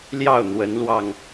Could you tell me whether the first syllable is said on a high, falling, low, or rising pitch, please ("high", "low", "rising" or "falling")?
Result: falling